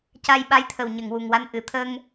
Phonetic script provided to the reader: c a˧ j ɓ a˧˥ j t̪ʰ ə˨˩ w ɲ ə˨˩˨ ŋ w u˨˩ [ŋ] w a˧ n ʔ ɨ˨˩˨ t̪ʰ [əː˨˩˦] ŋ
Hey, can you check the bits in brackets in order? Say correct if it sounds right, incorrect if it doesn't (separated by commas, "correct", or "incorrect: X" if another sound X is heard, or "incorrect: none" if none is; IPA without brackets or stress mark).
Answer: correct, incorrect: əː˧